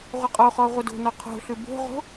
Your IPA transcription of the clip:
ʁʷ ɯ qʼ o χ ɔ ʁʷ ɐ d o̤ n ɔ qʰ o̤ ɬ ʉ b o̤ ʁ o̤

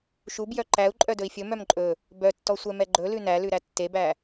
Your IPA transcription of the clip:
ʃ u b j œ ǃ æ u̯ ǃʼ œ d ɵ i̯ fʲ ɵ m œ m ǃʼ ɵ | b œ tː ɔ sʷ ɛ m ɛ ɡ͡ǃ ɵ l ʉ n æ l ʉ ɾ æ tː e b æ

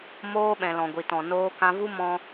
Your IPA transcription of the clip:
m oː˧ ɓ ɛ̃˨ l ɔ̃˨ ɡʷ i˨ t ɔ̃˨ n oː˧ k ã˧ v u˦ m ɔ̃˦

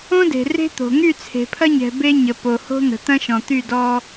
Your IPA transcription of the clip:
õ˦ d e̤˨ r e̤˦ t̪ o̤˨ ŋ y˦˨ t͡sʰ e̤˨ pʰ ɐ˦ ɲ ɛ̤˨ b e˦ ɲ ə˨ p o˨ h o̤˦ n̪ ə̤˨ t̪ ɐ̃˦ ʃ ɔ̃˨ t̪ y˦˨ d ɔ˦

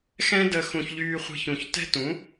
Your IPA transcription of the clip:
x ɛ̃˦ d ə˧ x ũ˧ ç ʎ yː˧ χʷ e̤˧ ç ũ˨ ç t ɛ̤˦ t ũ˨˦

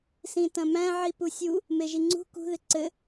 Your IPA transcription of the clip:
s ĩ t ɐ̃ m æ̃ ʕ i p u sʲ u | m e ʒ i ŋ͡ǀ ṳ k ṳ ð ɪ ǀ ɘ

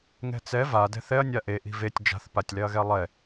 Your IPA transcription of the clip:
ŋ ɛ̤ t͡s ɛ v a d ɛ̤ θ ɛ ɐ̯ nʲ a ʔ e ʔ i̤ v e tʲ d͡ʒ a̤ θ p a tʲ l ɛ ɐ̯ ɣ ɛ lˠ ɛ

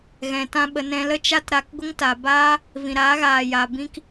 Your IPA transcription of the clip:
ɣ ɛ̃˨ t ã˧ ɓ ə˧ n ɛ̃˧ l ə˦ t͡ʃ a˦ t ɾ a˧ k ɡʷ ə˦ ŋ t a˨ b aː˦ | v ĩ˨ ɾ aː˨˦ ɣ aː˨ j a˨ b ĩ˦ k

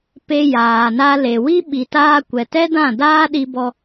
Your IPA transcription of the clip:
p e˧ j aː˨ n a˧ l e˨ w i˦ ɓ i˨ t aː˧ kʷ ɛ˨ t ɛ˦ d ã˦˨ d aː˦ ɗ i˧ b ɔ˧

